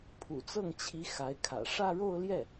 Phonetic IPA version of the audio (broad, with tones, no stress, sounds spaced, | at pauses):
pʰ ṵ˨˩ t͡s ɤ˥˩ ŋ t͡ɕʰ i˧˥ x a˧˥ ɪ̯ kʰ ä̰˨˩ ʂ ä˥˧ ɻ o˥˧ ʊ̯ l j ɛ˥˩